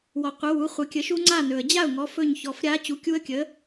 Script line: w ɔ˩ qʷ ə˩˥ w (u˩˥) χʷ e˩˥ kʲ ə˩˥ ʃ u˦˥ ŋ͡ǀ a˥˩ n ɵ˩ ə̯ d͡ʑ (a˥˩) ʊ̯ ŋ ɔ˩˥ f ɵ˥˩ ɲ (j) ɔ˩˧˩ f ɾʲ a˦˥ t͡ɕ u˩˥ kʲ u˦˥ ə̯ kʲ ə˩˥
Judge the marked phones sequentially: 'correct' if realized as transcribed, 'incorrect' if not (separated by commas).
correct, correct, incorrect